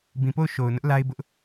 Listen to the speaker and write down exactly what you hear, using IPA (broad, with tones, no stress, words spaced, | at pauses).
bĩ˨po˦˨ʊ̯ ʃo˨ʊ̯nʊ˦ʔ la˦ɪ̯bʊ˦ʔ